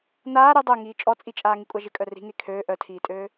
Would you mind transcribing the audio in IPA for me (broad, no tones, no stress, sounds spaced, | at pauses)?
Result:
n aː ɾ ʏ dˤ œ ŋ iː t͡ʃʼ ɔ t͡sʼ i t͡ʃʼ aː ŋ i kʷʼ a ʒ ɪ kʼ œ r i̤ ŋ e kʰ øː ʔ œ tʰ iː tʼ øː